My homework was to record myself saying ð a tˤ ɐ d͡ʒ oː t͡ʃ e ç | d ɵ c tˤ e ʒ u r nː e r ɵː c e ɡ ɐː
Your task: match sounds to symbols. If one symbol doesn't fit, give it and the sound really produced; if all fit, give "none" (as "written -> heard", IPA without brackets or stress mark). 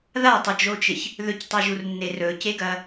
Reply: d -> ð